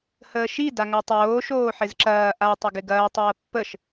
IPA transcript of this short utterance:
h əː ʃ i d a ŋ a tˤ oː ʃ oː ħ ɪ z ǁ ɐː ʔ a tˤ ɐ ɡ ɪ ɡ ɐː tˤ ɐː pː ə ʃ

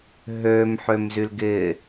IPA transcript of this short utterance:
ɦ ø m ħ ø m z y l ɡ ɪ

